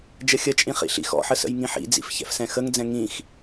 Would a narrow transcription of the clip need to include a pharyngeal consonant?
yes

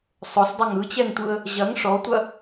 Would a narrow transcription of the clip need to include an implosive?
no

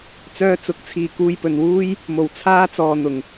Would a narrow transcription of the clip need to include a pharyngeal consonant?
no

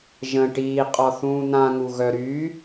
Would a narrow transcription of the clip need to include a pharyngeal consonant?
no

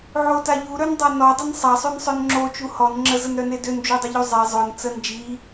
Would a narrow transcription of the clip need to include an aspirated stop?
no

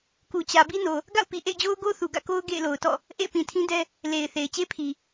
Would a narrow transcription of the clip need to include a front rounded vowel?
no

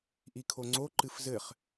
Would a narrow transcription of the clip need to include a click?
yes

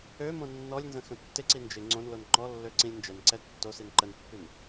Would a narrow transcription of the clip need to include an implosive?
no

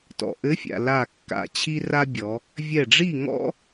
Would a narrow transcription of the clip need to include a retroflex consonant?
yes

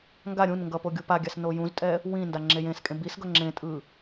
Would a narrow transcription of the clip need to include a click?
yes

